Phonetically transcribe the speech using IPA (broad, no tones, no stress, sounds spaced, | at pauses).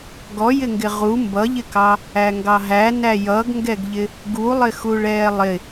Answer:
ɡ ɔ j ɪ ŋ ɡ ɪ ʁ u m b ʌ ʎ ɪ k ɑ | æ ŋ ɡ ɑ ɦ æ n æ j ʌ ɡ ŋ ɡ ɛ ɡ ʎ ɪ | ɡ u lˠ ɪ x u ɭ ɛː lˠ ɪ